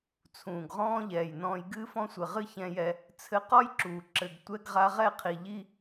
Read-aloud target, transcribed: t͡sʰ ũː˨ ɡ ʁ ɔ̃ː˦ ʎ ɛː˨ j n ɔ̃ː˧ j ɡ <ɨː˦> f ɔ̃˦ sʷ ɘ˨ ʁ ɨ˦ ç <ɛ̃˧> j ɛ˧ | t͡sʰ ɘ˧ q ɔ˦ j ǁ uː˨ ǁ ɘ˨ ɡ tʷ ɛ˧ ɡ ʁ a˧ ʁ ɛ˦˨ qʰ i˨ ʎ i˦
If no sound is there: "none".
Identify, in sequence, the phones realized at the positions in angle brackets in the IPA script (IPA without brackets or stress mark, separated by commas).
ɨː˦, ɛ̃˧